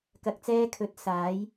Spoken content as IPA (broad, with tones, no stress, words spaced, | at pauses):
kɐ˧k̚t͡sɛː˥ kʰɵ˨˥t̚ saː˨˥j